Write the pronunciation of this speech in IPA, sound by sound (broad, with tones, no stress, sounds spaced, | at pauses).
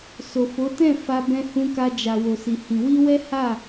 s o˨ f o˨˦ t ɛ̃˦˨ f a˧ b ɛ̃˧ h ũ˧ k a˧ d͡ʒ a˨ w o˨ s i˨ h ĩ˨ w i˧ w ɛ˦ h a˦˨